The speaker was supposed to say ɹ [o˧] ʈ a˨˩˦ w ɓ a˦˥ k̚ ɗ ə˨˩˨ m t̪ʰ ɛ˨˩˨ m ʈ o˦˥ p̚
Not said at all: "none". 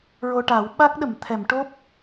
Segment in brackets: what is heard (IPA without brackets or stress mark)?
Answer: o˧